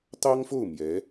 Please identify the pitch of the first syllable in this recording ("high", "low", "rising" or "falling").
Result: high